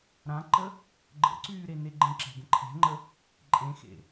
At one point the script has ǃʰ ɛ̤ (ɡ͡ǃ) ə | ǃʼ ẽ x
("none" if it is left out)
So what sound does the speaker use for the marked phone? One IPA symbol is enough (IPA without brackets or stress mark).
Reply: ŋ͡ǃ